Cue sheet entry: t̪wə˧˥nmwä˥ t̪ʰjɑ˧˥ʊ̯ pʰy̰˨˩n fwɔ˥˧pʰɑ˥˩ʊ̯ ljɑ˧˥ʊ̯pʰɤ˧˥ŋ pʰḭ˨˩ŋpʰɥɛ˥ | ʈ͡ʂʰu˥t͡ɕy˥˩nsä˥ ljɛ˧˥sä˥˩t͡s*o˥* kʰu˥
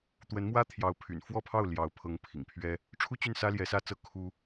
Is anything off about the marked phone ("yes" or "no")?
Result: yes